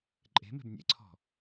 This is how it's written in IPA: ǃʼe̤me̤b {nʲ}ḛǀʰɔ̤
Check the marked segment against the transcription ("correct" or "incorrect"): correct